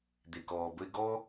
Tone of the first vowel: low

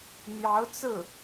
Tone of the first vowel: rising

